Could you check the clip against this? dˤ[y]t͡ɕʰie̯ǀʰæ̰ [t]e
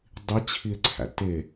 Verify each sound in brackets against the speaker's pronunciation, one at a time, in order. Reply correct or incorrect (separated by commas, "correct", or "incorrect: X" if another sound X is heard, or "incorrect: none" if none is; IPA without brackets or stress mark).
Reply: incorrect: i, correct